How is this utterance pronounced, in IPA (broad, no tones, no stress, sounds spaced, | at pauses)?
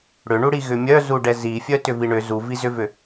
ɽ ʏ ɳ u ɽ i ɣ ʏ mʲ œ z u ɖ ɛ z i fʲ œ t ʏ v i ɳ ʏ z u v i z ʏ v ʏ